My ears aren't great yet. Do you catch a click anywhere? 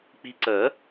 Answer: yes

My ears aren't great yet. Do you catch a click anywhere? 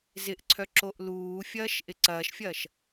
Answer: yes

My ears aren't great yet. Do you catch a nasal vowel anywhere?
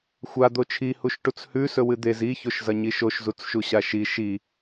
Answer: no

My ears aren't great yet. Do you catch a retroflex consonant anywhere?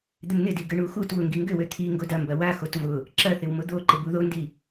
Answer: yes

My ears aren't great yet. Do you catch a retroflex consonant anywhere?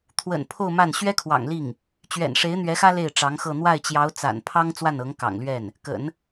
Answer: yes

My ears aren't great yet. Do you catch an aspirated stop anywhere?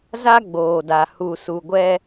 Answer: no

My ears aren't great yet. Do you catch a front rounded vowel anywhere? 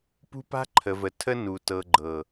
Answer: no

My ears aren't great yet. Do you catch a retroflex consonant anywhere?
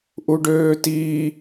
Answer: yes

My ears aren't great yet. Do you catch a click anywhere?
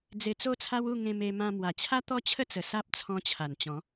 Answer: no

